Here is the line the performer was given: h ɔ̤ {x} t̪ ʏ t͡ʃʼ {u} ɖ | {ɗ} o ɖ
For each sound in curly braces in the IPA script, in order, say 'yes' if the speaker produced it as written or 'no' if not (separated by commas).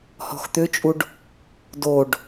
yes, yes, no